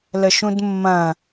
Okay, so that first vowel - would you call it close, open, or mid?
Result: mid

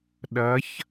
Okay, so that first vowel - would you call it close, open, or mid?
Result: open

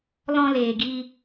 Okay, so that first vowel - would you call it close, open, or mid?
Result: mid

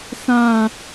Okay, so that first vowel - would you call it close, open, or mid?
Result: open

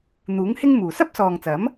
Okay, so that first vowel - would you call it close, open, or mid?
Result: close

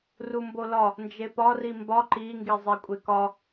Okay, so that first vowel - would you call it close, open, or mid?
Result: close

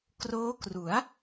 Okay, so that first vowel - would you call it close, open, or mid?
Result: mid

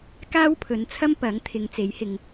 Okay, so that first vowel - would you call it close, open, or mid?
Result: open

